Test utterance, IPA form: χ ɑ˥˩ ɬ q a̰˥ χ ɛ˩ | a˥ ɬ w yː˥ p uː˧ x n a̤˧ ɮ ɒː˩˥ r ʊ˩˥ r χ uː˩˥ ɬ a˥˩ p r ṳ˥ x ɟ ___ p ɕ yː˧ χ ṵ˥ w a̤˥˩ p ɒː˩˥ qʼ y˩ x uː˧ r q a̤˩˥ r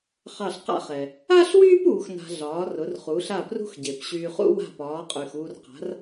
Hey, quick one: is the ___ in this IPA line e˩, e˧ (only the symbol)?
e˩